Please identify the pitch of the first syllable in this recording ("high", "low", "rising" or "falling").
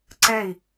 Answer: falling